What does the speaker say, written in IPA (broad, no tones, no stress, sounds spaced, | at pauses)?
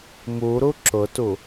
m u ɾ u ǁ ʊ t u